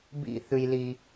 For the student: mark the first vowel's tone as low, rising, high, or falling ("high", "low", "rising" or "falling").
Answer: high